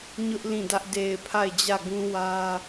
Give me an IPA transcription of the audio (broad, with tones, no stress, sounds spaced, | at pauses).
ɲ ʊ˦ ʔ l ĩ˦˨ d ä˦ ʔ d e˨ ɪ̯ pʰ a˦˨ ɪ̯ d͡ʑ ä˦˨ ɡ ũ˦ w ä˦